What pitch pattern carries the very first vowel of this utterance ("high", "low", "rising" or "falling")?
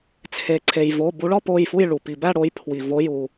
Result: low